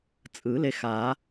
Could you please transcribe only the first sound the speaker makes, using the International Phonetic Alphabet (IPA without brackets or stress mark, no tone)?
t͡sʼ